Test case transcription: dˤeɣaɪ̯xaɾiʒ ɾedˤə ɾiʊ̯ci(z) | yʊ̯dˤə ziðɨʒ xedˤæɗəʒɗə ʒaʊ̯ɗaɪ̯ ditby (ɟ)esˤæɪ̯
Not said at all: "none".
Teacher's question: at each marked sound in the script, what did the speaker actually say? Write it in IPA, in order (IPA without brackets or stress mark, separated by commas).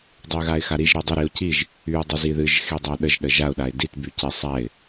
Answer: ʒ, c